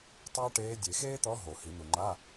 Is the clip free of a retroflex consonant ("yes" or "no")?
no